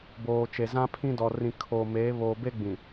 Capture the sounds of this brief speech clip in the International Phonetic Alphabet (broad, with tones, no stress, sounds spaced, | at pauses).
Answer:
b oː˨ t͡ʃ e˨ z ã˦ pʰ ĩ˦ d ɔ˨ r ĩ˨ kʰ oː˨ m eː˨˦ β oː˨ b e˦ ɡ͡b ĩ˨